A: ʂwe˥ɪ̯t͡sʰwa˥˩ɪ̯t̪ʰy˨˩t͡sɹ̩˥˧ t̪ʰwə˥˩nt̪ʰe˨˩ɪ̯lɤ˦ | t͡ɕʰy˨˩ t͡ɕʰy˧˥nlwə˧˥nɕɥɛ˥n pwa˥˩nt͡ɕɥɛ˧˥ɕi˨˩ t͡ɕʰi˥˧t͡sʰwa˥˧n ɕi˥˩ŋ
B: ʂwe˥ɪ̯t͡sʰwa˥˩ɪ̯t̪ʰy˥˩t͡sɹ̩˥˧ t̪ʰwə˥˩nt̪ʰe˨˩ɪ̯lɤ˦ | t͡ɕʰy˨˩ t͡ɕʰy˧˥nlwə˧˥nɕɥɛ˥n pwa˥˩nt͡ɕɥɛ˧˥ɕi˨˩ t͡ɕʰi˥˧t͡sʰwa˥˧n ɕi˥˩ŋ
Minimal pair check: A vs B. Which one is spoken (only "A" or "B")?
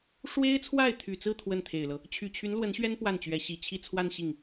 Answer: A